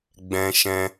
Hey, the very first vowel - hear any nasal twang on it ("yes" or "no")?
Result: yes